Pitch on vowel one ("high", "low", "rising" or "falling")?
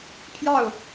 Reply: falling